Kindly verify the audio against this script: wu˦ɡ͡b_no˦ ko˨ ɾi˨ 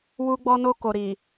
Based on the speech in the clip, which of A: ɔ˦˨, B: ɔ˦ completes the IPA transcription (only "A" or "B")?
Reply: B